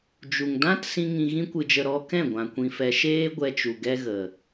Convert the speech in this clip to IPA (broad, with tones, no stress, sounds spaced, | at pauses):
d͡ʒ u˨ ŋ d ã˦ t s ĩ˧ ŋ ĩ˧ ɣ ĩ˦ kʷ ɨ˧ d͡ʒ ə˧ ɾ ɔ˦ k ɛ̃˦˨ ɡʷ ã˨ kʷ ĩ˧ f ɛ˧ ʃ eː˦ ɡʷ ɛ˧ t͡ʃ u˨ ɡ ɛ˦ ɣ ə˨